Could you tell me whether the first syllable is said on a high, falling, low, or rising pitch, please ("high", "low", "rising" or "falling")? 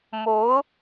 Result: rising